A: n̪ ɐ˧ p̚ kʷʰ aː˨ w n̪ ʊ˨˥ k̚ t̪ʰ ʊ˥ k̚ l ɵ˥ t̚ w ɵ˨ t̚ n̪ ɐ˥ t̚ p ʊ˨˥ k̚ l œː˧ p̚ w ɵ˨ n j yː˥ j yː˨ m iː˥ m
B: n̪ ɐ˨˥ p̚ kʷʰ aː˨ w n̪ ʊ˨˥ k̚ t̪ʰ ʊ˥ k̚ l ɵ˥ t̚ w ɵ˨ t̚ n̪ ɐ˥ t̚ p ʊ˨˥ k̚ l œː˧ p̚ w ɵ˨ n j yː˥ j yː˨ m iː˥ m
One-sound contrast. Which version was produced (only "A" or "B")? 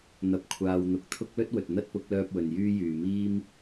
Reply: B